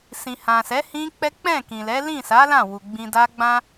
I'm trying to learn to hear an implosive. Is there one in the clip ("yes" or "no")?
no